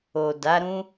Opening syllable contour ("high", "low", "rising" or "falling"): low